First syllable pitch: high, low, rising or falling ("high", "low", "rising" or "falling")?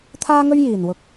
high